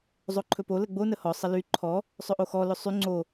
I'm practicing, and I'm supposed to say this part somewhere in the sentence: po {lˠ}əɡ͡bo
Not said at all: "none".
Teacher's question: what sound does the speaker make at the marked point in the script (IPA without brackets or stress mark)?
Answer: l